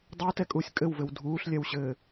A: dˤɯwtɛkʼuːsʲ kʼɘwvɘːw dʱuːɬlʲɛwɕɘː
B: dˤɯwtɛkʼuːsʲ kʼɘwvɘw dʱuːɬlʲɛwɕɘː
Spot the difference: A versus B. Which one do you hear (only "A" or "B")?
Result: B